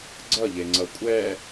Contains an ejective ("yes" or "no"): yes